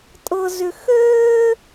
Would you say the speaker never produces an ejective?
no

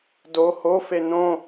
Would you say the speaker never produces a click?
yes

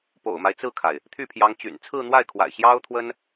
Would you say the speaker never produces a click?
yes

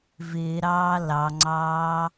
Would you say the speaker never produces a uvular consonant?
yes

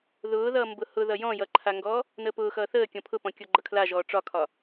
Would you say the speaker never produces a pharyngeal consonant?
yes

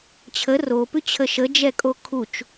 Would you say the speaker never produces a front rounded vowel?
yes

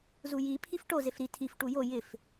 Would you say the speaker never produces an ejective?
yes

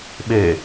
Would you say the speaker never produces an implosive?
no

